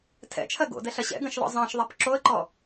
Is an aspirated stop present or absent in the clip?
present